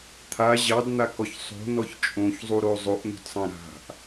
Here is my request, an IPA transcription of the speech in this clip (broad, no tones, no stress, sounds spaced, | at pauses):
t̪ʰ a ʑ ɑ d n̪ a k ɔ ç sˤ o̤ n ɔ ç t͡ʃʼ õ ç zˤ u ɾ o zˤ o ʔ n̪ o̤ d sˤ ã ɾ a̤ ʔ